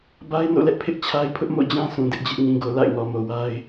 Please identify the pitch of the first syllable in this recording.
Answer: high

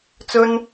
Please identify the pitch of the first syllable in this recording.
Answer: high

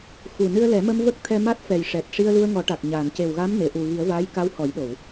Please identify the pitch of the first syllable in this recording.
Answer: low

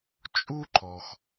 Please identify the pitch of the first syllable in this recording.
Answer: high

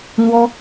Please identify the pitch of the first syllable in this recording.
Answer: high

